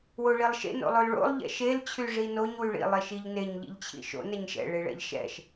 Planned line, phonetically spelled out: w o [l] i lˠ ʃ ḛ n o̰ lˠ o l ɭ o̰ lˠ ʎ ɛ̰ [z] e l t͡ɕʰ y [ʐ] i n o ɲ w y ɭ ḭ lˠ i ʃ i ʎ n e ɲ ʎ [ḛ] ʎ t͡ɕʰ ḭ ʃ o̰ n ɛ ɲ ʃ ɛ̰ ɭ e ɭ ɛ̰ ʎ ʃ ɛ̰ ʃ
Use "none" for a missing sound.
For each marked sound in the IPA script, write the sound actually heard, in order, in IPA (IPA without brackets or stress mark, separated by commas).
ɭ, ʃ, ʐ, ḭ